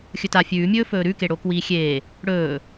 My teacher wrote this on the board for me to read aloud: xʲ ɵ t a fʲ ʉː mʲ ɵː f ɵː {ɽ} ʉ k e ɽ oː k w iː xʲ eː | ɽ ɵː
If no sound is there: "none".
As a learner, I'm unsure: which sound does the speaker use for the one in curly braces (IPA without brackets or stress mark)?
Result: ɾ